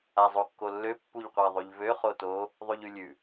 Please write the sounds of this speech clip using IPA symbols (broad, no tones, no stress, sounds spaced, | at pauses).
a zˤ o kː o lː ø pː u ʎ qʷ a ðˤ ʉ ʎ v ø χ o t o | ðˤ ʉ ʎ ʉ lʲ ʉ